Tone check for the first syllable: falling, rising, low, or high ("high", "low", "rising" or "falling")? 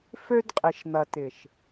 high